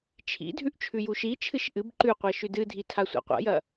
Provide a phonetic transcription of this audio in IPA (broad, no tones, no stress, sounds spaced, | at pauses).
t͡ʃʰ ḭ dʱ ʉ ʔ t͡ʃʰ ʉ j u ʃ i t͡ʃʰ ɨ ʃ ʔ ɨ b ǃ ʉ qʷ ɐ ʃ ʉ d ɨ dʱ i tʰ a sʷ a̰ qʷ a̰ j ɐ